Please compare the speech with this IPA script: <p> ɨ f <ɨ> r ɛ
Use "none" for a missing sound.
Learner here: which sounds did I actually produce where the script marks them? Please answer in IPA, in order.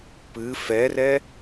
p, ɛ

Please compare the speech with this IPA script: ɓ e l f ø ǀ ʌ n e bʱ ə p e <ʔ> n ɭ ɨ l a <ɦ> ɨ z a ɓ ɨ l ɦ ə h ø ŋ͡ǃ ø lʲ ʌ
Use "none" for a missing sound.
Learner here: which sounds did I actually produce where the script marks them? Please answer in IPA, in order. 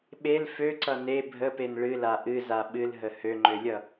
none, ʔ

